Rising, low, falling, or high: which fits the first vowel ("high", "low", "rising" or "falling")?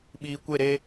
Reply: low